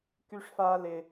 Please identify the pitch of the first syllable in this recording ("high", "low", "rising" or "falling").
high